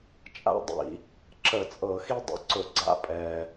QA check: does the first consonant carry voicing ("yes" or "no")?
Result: no